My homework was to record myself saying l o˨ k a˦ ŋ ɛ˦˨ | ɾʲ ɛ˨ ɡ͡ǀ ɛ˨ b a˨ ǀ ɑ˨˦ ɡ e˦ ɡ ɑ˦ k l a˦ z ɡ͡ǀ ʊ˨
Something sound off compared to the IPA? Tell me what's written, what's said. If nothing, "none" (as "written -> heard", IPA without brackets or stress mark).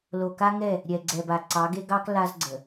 ʊ˨ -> ə˨